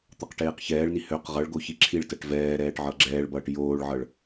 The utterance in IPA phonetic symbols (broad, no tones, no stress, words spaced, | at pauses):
t̪ʌqʈeːqçɛːɭni høq ʁʌɭɡo çiǁʰiɭtɜʈ vɛːɾɛːʈ ʕʌɡ͡ǁɛːɭbʌːʈ joːɭʕʌɭ